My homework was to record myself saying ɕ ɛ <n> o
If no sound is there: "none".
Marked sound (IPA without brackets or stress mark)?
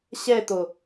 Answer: t̪